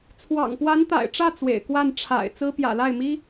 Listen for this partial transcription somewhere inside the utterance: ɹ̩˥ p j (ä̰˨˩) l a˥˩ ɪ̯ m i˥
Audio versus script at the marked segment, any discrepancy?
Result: no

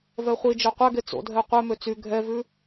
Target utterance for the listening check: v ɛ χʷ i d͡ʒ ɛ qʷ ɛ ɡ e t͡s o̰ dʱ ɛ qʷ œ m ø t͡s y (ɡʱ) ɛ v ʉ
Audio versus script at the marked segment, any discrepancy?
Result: no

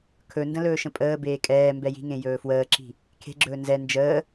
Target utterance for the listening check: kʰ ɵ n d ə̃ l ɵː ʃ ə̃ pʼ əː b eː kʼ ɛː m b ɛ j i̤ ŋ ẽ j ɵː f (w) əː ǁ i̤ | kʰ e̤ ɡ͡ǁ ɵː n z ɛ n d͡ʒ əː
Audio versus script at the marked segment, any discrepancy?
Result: no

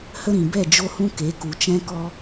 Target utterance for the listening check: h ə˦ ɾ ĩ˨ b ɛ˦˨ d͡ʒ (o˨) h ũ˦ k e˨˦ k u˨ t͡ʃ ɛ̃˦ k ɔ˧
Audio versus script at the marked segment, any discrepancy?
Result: yes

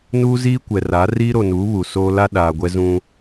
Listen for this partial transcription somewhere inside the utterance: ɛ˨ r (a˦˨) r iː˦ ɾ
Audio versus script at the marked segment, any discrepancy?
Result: yes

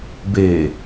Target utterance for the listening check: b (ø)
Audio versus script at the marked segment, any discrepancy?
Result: yes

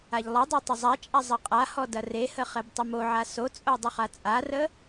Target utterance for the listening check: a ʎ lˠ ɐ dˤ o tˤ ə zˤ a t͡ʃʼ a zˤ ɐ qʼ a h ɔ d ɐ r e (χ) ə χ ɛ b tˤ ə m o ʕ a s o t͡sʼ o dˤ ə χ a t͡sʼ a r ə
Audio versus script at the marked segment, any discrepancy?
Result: yes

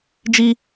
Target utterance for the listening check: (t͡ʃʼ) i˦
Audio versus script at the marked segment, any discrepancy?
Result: yes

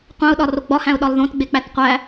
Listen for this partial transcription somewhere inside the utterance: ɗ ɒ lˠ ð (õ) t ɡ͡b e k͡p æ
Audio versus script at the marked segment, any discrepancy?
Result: no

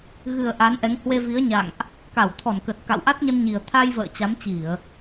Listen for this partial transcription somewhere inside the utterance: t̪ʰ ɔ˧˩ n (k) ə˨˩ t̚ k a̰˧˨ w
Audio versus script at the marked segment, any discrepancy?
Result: no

